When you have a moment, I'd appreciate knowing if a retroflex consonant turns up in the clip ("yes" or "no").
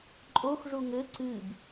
yes